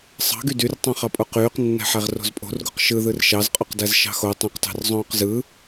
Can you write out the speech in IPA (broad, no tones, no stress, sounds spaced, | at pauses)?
sˤ ɑ̤ ɡ y d y r tˤ õ χ ɑ pʼ o q yː q nː æ̤ ħ æ ʁ r o̤ z pʼ o̤ r ɡ u q ʃ ɯ ð ɯ r ʃ ɑ z qʼ o q d æ z ʃ ɑ̤ x o tˤ ũ q t ɑ̤ r zˤ õː q z ɯ